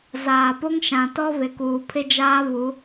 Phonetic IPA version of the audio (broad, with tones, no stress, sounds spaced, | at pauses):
z aː˨ p o˦ ŋ ʃ ã˨ t ɔ˦ β ɪ˨ k uː˨ pʰ ɪ˦ d͡ʒ aː˦ β u˨˦